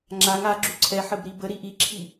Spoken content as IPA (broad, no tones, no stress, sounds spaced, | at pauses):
ŋ͡ǁ a ŋ a ɡ͡ǁ u ǀʰ ɛ ħ ə b ɾ i b ə ɾ i ʔ i ǁʰ i